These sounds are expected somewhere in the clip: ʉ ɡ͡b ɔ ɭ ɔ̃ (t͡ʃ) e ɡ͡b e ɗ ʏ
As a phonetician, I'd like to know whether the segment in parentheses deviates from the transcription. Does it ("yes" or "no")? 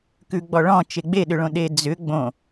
no